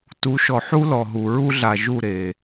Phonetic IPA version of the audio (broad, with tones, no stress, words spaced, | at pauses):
tu˨˦ʃɔ˨ħu˦ lɔ˨ɦu˨ ɹu˦ɮa˨ ʒu˦˨ ɾe˨